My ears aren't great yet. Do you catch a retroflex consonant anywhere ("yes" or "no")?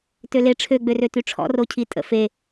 yes